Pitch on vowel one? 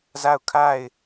falling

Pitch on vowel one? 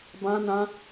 high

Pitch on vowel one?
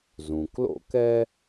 low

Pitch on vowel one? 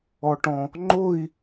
low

